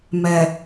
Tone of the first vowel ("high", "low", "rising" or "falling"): low